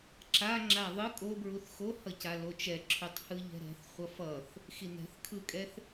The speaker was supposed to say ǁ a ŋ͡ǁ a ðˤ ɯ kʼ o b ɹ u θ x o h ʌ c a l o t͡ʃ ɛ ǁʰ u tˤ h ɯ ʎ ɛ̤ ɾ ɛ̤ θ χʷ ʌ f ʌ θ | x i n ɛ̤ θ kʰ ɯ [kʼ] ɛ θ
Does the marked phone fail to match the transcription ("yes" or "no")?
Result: no